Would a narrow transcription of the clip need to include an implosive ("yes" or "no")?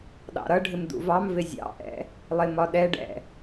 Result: yes